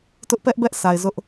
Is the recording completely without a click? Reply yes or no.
yes